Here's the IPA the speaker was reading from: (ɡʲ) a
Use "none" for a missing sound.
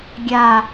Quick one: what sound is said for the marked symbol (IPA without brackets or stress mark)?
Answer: ɡʲ